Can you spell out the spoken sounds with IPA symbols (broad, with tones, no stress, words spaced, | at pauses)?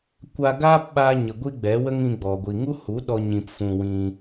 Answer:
kʷa˧ɡaː˦p ɓaː˧ɲə˨ ɡʷi˦ɡ͡bɛ˨˦wə˦ŋ ĩ˧ɡ͡bɔ˨ ɡʷi˨ŋu˦hu˨˦ɗɔ˧ ɲĩ˧pfũ˧ wĩ˧